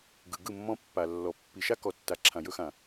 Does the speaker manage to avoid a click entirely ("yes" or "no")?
no